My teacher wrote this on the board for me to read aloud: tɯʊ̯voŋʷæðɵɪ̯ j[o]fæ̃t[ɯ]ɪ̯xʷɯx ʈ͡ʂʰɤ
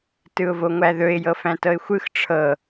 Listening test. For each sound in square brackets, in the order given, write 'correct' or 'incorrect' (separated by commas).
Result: incorrect, incorrect